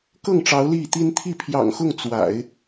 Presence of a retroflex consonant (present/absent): present